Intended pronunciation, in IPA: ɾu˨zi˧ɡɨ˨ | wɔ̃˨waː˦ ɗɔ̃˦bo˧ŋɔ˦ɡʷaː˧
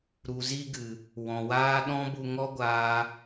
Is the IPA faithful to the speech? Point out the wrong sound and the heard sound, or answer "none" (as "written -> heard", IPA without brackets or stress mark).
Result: o˧ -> u˧